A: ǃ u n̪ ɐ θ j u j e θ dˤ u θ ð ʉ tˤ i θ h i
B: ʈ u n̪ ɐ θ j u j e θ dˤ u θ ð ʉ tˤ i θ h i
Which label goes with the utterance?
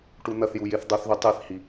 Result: B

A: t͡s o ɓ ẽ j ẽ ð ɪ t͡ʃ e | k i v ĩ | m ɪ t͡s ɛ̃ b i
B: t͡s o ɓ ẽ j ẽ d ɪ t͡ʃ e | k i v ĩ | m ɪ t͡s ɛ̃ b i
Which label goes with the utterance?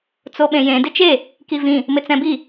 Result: B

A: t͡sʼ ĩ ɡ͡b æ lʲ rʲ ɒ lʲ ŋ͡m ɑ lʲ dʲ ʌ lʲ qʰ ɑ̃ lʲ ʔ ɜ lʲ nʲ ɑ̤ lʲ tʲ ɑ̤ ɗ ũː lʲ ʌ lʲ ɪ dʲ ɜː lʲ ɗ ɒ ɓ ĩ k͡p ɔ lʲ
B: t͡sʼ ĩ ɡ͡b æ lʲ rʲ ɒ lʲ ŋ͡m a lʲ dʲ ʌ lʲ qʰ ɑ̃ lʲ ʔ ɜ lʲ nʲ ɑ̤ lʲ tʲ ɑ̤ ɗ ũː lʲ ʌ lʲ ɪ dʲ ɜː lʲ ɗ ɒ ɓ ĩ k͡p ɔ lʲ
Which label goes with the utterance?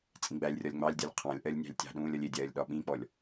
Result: A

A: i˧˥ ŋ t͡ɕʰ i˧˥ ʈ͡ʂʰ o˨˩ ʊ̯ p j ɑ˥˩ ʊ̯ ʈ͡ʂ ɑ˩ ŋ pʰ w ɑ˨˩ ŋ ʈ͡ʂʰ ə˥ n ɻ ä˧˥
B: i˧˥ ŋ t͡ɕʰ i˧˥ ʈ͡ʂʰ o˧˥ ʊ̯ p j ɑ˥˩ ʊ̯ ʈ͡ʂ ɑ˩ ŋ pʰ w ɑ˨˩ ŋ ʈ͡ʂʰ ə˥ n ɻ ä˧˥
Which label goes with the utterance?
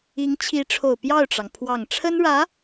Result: A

